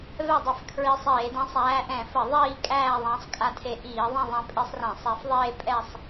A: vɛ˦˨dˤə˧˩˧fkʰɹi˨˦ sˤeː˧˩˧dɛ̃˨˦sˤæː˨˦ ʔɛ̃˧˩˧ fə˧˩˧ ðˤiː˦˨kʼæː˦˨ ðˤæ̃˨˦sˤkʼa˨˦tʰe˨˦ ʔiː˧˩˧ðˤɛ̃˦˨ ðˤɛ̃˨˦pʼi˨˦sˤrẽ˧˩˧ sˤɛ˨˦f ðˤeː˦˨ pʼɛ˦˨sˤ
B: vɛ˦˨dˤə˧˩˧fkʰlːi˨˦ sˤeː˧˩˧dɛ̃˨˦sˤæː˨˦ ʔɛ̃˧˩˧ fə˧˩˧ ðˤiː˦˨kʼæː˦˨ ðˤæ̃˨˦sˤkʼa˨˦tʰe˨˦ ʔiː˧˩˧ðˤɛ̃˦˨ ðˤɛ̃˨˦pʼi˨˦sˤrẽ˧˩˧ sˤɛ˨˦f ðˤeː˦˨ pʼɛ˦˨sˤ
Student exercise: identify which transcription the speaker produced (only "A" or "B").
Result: A